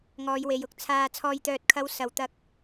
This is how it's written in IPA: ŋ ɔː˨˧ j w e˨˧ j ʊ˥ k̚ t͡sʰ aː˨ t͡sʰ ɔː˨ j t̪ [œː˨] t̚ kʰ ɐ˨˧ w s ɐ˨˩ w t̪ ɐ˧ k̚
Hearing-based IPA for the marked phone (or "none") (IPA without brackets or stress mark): œː˨